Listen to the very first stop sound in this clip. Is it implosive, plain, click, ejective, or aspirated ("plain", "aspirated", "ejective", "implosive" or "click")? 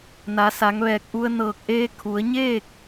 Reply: plain